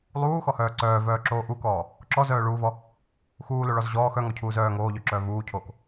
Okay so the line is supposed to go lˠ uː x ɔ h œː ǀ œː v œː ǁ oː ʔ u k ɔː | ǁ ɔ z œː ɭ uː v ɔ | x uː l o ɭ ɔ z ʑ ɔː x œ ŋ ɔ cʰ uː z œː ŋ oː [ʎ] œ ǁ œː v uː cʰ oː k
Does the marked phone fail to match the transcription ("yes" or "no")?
no